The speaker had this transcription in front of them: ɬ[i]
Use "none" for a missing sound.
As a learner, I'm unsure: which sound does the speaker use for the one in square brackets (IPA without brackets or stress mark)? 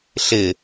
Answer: ɪ